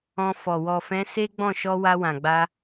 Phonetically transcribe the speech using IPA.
ɔ̃˧ f ɔ˨ w ɔ˨ f ɛ̃˨˦ s e˦ ɡ͡b ɔ̃˦˨ ʃ ɔ˧ w a˧ w ã˨ ɡ͡b a˧

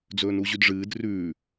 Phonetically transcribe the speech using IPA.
d͡z ɵː n u ʑ ʉ d ʐ ɨː d r ʉː

